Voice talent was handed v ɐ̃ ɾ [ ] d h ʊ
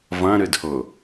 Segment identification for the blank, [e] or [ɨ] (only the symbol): ɨ